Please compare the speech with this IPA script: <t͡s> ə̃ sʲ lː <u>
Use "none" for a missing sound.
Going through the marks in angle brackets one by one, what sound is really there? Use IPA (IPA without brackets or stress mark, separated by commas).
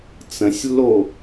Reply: t͡s, o